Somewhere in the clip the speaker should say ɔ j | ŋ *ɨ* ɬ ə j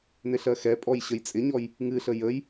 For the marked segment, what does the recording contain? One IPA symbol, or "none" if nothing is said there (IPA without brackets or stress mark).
ɨ